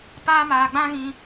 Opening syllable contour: high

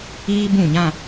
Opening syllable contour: high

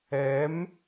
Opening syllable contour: rising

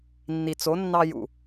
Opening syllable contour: low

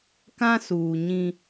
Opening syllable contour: high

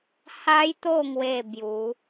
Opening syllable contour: high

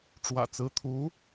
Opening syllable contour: low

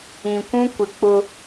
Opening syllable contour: low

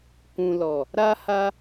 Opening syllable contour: low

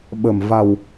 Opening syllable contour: low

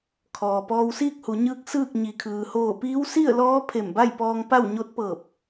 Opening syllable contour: low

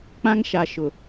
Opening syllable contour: high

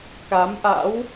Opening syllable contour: rising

